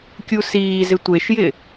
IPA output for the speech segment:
kʲ u s iː z ɪ tʷ e ʃ j ɪ

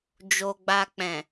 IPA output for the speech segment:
d͡ʒ o˧ ɡ͡b a˧ k͡p ɛ̃˨

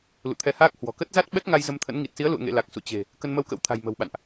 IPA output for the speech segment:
l ṵ˧˨ t̪ʰ ɛ˧ h aː˦˥ k̚ h w ɔ̤˨˩ k ə˦˥ t̚ z a˦˥ t̚ ɓ ɛ˦˥ k̚ ŋ a˧ j z ə˧ m t̪ʰ ə̰˧˥ n ŋ i˨˩ t̚ s i˨˦ ə̯ l ṵ˧˨ ə̯ ŋ ḛ˧˨ l a˨˩ k̚ s ṵ˧˨ t͡ɕ e̤˨˩ | k ə˧ n m ə˧ w k ə̰˧˥ w t̪ʰ a̤˨˩ j m ə̤˨˩ w ɓ a̰˧˨ n ʔ

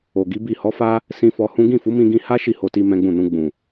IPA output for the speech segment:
o˨ ɡ i˨˦ b i˦˨ h ɔ˨˦ f a˦ | s ĩ˧ f ɔ˧ h ũ˦ ɡ ĩ˦˨ f u˨˦ m ĩ˧ ɡ ĩ˧ h a˦ ʃ i˦˨ h o˧ t i˧ m ɛ̃˦ ɡ͡b ũ˦˨ n ũ˧ ɡ͡b ũ˨

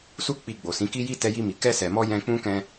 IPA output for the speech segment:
s u˧ k͡p i˨ ɡ͡b o˨ s ĩ˨˦ k i˦ j i˦ t ɛ˧ j i˧ m i˨ k ɛ˧ s ɛ˨ m ɔ˧ j ɛ̃˧ k͡p ũ˦ k ɛ̃˧

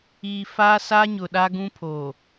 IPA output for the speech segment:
iː˨ f aː˦ s a˦ ɲ ʊ˨ ɗ a˦ ɡ ũ˦ pʰ oː˨

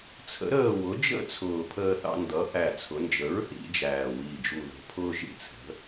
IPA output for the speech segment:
t͡sʰ ə̰˩˥ ɾ əː˥˨ w ʊ˩˥ d͡ʒ ə̰˥˨ t͡sʰ ʊː˨˩ pʰ əː˧ θ ɑ̰˧ n d ʌ˩˥ ʔ æ˨˩ t͡sʰ ʊ˩˧ n d͡ʒ ə˩˥ ɹ θ ḭ˩˧ d͡ʒ æː˨˩ w iː˨˩ d͡ʒ u˨˩ ð ə̤˩˧ pʰ ʊː˧ ʒ ḭ˨˩ t͡sʰ ə̤˩˧

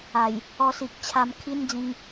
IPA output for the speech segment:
a˨˩ j | ɔ˧ s i˨ k̚ t͡ɕʰ a˧ m kʰ i˦ n d͡z ĩ˧ ŋ

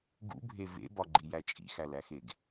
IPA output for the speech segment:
ɡ ṵ bʱ e v ḛ b ɒ ɡ͡ǃ i j æ t͡ʃʼ ḭ x æ l æ x e ɡ

